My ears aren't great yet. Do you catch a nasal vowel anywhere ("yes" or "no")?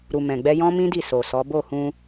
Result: yes